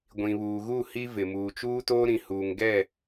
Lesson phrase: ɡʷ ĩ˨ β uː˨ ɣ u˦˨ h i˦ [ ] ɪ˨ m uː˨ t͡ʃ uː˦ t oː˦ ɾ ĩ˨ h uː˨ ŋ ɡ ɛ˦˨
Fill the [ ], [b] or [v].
v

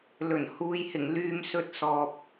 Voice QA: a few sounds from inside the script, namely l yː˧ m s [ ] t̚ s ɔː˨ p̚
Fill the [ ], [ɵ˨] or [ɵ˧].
ɵ˧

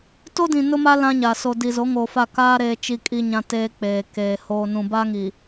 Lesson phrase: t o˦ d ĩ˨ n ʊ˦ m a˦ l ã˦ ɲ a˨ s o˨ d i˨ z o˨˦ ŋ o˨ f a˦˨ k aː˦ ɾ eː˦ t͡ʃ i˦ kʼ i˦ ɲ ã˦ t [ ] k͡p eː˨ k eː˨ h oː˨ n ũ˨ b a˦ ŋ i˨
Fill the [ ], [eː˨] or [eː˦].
eː˦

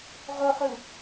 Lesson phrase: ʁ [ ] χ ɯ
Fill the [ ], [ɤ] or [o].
o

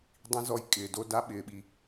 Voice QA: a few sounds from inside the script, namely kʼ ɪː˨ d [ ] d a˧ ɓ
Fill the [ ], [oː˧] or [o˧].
o˧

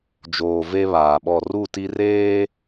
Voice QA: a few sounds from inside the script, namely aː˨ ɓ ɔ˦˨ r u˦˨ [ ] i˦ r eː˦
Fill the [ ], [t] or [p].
t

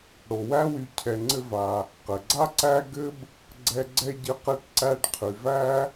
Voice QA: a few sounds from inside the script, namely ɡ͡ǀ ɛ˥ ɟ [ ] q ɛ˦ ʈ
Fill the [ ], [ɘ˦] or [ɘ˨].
ɘ˦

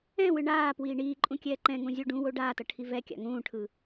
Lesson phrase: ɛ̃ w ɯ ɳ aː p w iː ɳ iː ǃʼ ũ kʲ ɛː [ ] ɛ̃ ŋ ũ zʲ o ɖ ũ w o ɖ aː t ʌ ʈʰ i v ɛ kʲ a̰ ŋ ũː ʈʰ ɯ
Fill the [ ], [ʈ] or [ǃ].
ǃ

